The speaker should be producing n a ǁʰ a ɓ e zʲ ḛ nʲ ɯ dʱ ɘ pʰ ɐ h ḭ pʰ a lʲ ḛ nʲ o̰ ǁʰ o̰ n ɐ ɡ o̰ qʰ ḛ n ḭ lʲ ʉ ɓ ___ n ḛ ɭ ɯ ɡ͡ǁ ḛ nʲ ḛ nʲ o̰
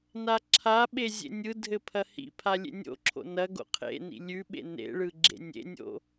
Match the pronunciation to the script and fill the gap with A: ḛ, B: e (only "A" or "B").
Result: A